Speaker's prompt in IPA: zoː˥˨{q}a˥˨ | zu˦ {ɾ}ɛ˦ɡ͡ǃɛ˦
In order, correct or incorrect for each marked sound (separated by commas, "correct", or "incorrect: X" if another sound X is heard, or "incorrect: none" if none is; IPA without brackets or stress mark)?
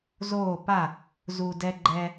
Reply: incorrect: p, incorrect: d